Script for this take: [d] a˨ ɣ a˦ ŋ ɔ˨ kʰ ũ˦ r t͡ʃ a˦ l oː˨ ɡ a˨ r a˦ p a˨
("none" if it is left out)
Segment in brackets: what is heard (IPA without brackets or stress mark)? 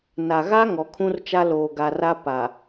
n